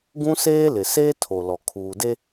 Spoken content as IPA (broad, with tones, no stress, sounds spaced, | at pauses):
ɡ ũ˦ s eː˦ l ɪ˨ s eː˦ tʰ o˨ l ɔ˨ kʰ uː˨ d e˦